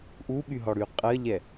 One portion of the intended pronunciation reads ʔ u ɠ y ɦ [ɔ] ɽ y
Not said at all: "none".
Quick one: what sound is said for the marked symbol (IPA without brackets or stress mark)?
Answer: ɔ